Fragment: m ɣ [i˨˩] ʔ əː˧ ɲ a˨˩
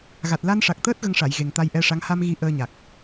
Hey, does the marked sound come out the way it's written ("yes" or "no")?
no